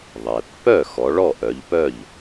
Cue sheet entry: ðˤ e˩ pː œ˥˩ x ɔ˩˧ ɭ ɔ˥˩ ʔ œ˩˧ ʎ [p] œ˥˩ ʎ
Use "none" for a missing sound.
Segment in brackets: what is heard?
p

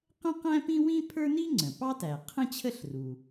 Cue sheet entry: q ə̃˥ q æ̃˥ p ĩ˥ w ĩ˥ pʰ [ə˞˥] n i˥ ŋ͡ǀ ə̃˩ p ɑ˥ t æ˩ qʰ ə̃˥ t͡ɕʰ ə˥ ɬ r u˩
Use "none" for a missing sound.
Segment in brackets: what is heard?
ə˞˥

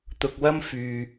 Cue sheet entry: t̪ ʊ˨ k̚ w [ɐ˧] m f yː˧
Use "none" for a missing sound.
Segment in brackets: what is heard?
ɐ˥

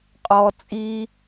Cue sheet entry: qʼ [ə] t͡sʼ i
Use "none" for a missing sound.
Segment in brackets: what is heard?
ɔ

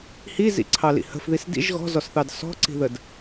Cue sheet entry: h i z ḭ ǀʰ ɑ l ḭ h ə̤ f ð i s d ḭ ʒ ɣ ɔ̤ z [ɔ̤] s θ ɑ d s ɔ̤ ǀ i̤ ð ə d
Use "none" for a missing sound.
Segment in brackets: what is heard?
ɔ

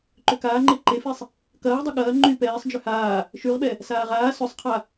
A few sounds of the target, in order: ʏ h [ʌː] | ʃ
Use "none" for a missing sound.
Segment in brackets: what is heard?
aː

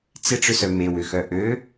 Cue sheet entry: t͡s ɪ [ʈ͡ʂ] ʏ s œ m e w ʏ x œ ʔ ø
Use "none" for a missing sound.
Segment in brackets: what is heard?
ʈ͡ʂ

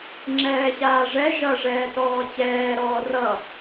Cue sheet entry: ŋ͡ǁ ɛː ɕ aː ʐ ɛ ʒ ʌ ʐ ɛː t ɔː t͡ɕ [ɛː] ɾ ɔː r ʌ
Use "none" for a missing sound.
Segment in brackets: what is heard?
ɛː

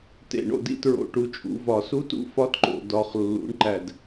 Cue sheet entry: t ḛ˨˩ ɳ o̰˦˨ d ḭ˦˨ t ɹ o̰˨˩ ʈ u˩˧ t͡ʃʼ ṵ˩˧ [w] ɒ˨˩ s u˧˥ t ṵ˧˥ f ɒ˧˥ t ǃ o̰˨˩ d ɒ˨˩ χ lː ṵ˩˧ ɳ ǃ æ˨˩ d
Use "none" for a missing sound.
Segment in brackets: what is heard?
v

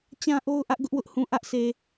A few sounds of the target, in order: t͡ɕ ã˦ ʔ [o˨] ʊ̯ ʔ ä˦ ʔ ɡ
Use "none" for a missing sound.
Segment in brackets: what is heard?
o˦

